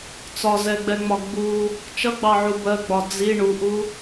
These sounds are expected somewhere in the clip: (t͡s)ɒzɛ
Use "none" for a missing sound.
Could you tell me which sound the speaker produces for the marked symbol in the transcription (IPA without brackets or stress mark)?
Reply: t͡s